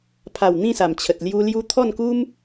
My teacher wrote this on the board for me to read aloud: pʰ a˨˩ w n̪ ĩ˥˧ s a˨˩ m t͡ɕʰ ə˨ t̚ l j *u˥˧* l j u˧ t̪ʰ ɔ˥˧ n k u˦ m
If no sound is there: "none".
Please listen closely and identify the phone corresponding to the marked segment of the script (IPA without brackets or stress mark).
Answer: u˧